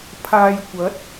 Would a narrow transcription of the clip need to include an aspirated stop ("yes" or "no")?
yes